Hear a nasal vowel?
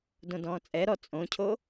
yes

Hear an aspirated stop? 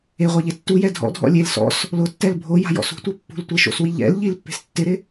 no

